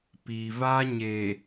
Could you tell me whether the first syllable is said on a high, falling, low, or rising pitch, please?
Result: low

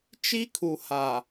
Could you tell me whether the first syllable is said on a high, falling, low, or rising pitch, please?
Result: high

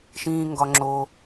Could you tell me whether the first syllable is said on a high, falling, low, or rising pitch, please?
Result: high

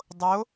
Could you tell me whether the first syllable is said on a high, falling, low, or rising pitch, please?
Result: rising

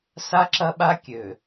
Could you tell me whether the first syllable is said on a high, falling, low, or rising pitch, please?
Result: high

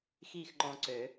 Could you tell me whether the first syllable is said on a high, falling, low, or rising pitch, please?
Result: falling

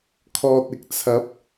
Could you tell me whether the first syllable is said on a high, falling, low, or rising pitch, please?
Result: low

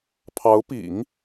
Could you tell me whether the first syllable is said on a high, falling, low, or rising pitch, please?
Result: rising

